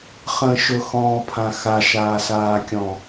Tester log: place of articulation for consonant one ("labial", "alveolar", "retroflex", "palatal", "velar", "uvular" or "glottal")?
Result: uvular